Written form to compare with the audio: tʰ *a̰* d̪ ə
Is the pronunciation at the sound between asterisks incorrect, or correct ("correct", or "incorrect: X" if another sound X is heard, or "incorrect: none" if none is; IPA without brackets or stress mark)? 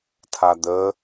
incorrect: a